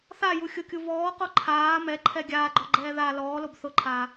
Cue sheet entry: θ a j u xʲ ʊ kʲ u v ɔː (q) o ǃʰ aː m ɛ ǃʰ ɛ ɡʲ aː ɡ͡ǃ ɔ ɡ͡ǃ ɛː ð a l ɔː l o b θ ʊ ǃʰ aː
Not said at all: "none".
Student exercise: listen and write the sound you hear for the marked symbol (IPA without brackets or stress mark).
q